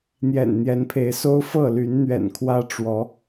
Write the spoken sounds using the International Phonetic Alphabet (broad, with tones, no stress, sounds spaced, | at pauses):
n̪ j ɛ̰˨˩ n n̪ j ɛ˨˦ n pʰ e˨˦ ɪ̯ s o˦ ʊ̯ f ɤ˥˨ l y˨˦ n n̪ ɥ ɛ̰˨˩ n kʰ w ä˦ ʈ͡ʂ w ɔ˨˦